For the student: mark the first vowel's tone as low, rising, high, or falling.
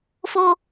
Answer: high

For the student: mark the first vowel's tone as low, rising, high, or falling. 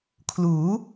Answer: rising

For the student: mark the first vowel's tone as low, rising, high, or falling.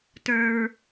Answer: low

